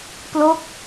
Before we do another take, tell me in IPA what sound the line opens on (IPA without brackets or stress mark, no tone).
p